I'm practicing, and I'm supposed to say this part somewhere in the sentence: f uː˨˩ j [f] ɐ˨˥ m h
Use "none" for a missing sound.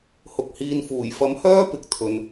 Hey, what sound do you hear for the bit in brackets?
f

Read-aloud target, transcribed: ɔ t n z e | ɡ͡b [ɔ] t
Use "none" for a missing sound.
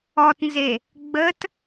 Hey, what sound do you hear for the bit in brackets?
ə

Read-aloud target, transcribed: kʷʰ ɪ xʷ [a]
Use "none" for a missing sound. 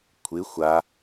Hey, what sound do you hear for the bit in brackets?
a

